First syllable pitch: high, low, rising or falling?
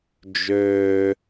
high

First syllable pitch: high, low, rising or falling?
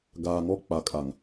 low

